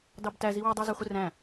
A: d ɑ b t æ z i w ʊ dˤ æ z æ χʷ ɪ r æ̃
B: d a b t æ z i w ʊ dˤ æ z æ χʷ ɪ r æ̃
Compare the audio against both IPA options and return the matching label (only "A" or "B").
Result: A